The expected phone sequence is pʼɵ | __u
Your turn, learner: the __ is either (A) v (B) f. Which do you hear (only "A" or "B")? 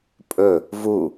A